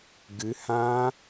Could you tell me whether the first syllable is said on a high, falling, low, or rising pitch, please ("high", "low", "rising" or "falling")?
rising